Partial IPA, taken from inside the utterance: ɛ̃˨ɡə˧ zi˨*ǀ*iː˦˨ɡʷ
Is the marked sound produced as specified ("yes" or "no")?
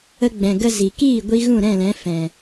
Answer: no